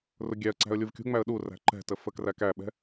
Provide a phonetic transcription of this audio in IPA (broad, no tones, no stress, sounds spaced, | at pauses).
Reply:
r ʊ ɡʲ æ ə̯ ǀ æ̤ ə̯ lʲ u v kʲ ṳ ŋ͡m æ ə̯ ɗ u r æ̤ ǃ ɛ̤ t ə f ə k r æ k æ ɓ ɛ̤